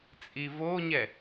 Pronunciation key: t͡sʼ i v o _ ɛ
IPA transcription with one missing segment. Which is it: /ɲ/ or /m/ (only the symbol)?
ɲ